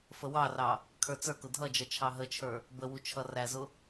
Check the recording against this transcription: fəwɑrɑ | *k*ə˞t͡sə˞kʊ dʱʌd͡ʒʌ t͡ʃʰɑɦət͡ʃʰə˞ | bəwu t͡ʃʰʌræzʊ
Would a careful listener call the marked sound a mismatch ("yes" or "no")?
yes